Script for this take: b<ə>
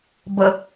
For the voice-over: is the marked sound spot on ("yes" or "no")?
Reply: yes